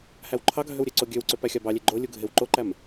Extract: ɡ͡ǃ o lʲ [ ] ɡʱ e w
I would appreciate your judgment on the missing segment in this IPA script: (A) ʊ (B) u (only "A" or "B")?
B